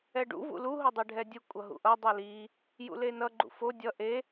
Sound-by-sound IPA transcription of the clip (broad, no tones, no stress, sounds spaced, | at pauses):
ɛ ɖ ṵ v ṵ l u ɦ o dˤ ɛ ɖʱ ɛ dʲ ɯ kʷʼ ʌ ɦ ṵ ʔ ʌ dˤ u l i | j ṵ l e n ʌ ɡ͡ǃ ṵ f o dʲ ʌ ʔ e